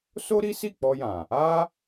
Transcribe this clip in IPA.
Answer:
s o˦ ɾ i˦ s i˦˨ k͡p ɔ˧ j ã˨ | a˦

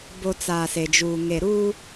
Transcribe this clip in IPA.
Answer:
b o˨ t͡s aː˨ s e˨ d͡ʒ uː˨ ŋ e˨ ɾ uː˦

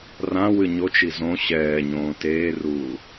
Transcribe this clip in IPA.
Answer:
r ã w ɨ ɲ o t͡ʃ i z õ ɕ ɛː ɲ õː t eː r uː

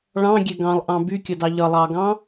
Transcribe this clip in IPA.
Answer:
ɭ ɑ̃ ɡʲ ɛ ɡ ɑ̃ lˠ ʔ ɑ̃ b y kʲ ʌ d ɑ ʎ ʌ lˠ ɑ ɡ ɑ̃

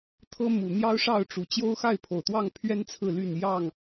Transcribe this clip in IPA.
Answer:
t̪ʰ ɤ˦ m u˨˩ n̪ j ɑ˦ ʊ̯ ʂ ɑ˥˨ ʊ̯ ʈ͡ʂ u˨˩ t͡ɕ j o˦ ʊ̯ x a˥˨ ɪ̯ pʰ o˨˩ ʊ̯ t̪ w ɑ˥˨ ŋ pʰ ɥ ɛ˦ n t͡sʰ ɹ̩˥˨ l y˥˨ n j ɑ˥˨ ŋ

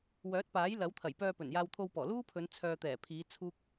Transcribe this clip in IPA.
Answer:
w œː˨˥ t̚ p aː˨˥ j l ɐ˨˥ w t̪ʰ ɐ˨˩ j p œː˧ p ɵ˨˩ n j aː˧ w t̪ʰ o˧ w p ɔː˨˩ l uː˥ pʰ ɵ˨˧ n t͡sʰ œː˨ t̪ ɛː˨˩ pʰ iː˨˧ t͡sʰ uː˥ k̚

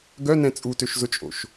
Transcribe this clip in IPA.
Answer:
ɡ œ n ɛ̃ t͡sʼ u t ø ʃ z ʊ t͡ʃʼ o̰ ʃ

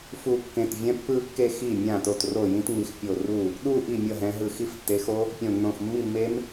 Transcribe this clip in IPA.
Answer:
f u˥˧ kː ẽ˧˩ t vʲ ɛ̃˦˥ pː ɯ˥˧ kː e˥˧ x i˥˩ mʲ ã˥˩ t o˥˩ t r o˥˩ j ĩ˦˥ t ŋ͡m i˨˦ x pʲ o˧˩ r u˥˩ | ɗ u˥˧ ʔ i˥˩ mʲ ʌ˥˩ ɦ ɛ̃˨˦ ɦ ɯ˧˩ x i˦˥ f tː e˨˦ x o˦˥ | pʲ õ˧˩ nː õ˧˩ x mː i˥˩ mː e˦˥ m

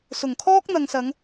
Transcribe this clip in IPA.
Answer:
s ʊ˨˩ ŋ kʰ ɔː˥ k̚ n̪ ɐ˨ ŋ s ɐ˨˧ ŋ

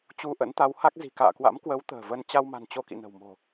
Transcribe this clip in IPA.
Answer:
t͡ɕ u˧ ʔ ə̰˧˥ n t̪ a˨˦ w h a˦˥ k̚ z i̤˨˩ k a̰ː˧˨ k w a̰˧˥ m k w ə˨˦ w t̪ ə̤ː˨˩ v ə˧ n t͡ɕ a˧ w m a̤˨˩ n t͡ɕ o˧ k ḭ˧˨ n ə̤˨˩ w m o̤˨˩

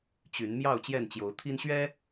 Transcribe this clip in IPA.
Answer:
t͡ɕ y˨˦ n m j ɑ˥˨ ʊ̯ t͡ɕ j ɛ˥˨ n t͡ɕ j o˨˦ ʊ̯ t̪ʰ i˦ n ɕ ɥ ɛ˦

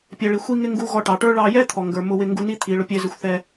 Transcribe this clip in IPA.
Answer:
pʲ ɛ˩ ɭ i˩ xʷ i˧ ŋ ɪ˧ ŋ ɡ u˧ ɣ ɔ˧ ʈ ɑ˩ ʈ ə˞˥ ɭ ɑ˧ j ɛ˥ t̪ʰ ɔ˩ ŋ ɡ ə˞˩ m ʊ˧ w ɪ˧ ŋ ɡ u˧ n i˥ t̪ʰ i˩ ɭ ʊ˧ pʲ ɛ˧ z ɪ˧ xʷ θ ɛ˧

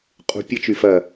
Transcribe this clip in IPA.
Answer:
qʼ ṳ pʲ ɐ t͡ʃ y f ɐ

